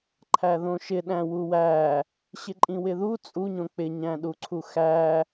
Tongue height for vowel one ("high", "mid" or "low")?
low